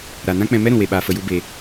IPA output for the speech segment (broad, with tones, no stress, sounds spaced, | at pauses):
ɾ a˨ n ã˦ k͡p ɛ̃˧ m ɛ˦ ɾ ũ˨ w e˨ ɓ aː˧ f ə˧ j u˦ b e˧